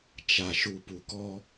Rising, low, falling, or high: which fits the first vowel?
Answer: low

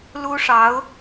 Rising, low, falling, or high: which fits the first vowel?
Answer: high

